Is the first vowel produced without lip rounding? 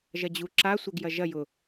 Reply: yes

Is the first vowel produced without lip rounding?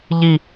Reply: yes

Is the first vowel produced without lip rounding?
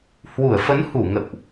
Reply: no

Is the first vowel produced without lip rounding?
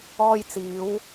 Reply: no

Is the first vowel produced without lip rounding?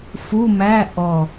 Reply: no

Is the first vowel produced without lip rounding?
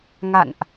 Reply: yes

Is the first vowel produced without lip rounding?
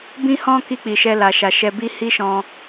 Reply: yes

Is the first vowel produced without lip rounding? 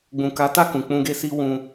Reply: no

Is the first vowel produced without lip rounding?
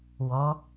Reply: no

